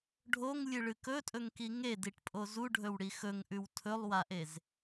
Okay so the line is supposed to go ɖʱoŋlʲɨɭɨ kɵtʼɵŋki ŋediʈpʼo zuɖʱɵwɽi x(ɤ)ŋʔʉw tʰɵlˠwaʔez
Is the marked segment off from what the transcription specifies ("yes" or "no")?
yes